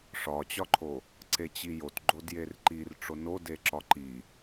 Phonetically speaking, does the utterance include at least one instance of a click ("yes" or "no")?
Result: yes